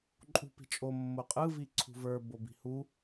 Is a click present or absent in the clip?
present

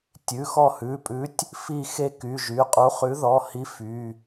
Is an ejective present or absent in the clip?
present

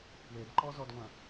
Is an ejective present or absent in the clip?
absent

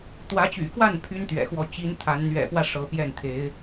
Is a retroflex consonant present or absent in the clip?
present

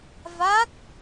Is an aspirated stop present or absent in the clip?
absent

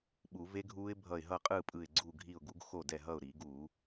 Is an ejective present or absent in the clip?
present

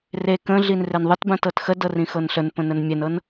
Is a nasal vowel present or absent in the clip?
present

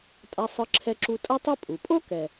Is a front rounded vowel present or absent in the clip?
absent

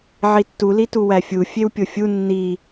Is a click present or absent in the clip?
absent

